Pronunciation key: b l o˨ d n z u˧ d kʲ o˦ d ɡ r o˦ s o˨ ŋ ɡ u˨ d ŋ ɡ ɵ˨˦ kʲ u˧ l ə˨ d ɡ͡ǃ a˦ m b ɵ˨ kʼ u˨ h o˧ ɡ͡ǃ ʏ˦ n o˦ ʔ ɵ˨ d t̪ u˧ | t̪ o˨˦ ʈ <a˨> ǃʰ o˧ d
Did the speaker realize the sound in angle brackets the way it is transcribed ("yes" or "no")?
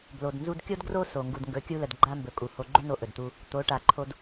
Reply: yes